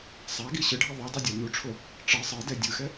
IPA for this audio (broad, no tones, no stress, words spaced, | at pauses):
sˤaɡi ɕɯɖʱi ðˤudˤɯdʲa nuʈ͡ʂʰo | ʈ͡ʂɤ sˤɤdɛ dʲɯxɛ